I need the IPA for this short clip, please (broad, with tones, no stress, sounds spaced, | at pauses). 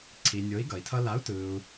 ǀʰ i˨ nʲ o˨˥ i̯ ɡ ʌ˨ i̯ tʰ ʌ˥ l a˨˥ u̯ t ɯ˨ u̯